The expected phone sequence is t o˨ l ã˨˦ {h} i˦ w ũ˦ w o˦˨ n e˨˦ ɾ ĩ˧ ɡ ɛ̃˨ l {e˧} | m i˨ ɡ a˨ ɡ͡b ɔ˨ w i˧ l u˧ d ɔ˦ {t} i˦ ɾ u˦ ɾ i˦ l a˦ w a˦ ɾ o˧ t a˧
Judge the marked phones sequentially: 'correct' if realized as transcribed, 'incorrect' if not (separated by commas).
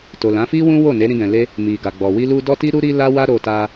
incorrect, correct, correct